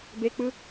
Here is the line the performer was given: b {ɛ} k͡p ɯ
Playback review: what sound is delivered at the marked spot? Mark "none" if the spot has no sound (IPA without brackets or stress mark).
e